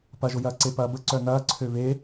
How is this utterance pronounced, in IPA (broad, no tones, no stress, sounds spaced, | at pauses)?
p ɐ ʒ ʊ j ɐː ǀ e p ɐː b ə ǀ œ n ɐː ǀʰ ø β e